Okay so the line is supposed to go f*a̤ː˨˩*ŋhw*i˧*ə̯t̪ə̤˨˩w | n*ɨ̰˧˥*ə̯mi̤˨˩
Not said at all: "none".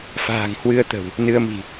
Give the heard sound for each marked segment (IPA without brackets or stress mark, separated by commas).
a̤ː˨˩, ɨ˧, ɨ˧